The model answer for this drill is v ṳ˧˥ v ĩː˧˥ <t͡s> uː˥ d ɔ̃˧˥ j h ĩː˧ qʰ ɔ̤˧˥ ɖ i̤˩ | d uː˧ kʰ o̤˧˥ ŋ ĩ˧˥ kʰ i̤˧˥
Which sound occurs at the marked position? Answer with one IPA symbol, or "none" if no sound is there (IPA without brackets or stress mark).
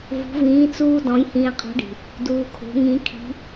t͡s